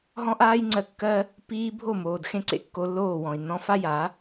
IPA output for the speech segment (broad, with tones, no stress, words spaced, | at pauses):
ɦɔ̃˦ʔaː˦jŋ͡ǀɜ˧kːɜ˦ | piː˦ bʱo˦˨moː˨d xẽ˦ǀḛ˦kːo˧lːoː˦˨ wɔ̃˨i̯nːɔ̃˧fa˦ja˨˦